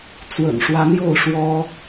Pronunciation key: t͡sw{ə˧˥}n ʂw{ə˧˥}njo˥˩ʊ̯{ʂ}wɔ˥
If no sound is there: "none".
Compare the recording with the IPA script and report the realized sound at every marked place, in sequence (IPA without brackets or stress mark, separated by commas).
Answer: ə̰˨˩, a˧˥, ʂ